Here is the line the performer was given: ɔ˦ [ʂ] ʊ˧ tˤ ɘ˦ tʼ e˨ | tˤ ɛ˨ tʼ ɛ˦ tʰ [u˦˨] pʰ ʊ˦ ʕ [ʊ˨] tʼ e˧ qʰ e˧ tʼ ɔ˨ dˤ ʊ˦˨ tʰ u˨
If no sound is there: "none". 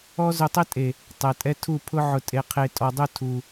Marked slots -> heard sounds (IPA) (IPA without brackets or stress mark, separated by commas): z, u˦˨, ʊ˧